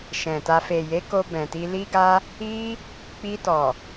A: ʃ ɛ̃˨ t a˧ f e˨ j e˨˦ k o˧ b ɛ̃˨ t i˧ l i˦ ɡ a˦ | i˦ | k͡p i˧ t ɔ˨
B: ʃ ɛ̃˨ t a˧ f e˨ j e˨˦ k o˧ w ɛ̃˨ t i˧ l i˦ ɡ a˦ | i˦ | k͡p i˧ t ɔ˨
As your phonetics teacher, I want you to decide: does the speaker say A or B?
A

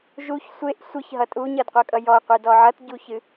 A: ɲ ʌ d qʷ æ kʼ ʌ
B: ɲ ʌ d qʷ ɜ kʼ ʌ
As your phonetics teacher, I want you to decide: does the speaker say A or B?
B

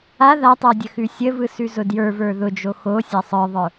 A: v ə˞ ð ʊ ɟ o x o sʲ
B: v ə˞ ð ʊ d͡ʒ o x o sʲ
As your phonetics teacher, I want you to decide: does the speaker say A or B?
B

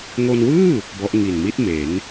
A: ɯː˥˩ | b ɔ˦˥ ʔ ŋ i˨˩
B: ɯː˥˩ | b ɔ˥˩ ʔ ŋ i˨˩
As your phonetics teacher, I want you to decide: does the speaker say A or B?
A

